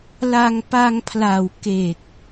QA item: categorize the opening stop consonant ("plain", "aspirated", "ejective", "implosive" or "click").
plain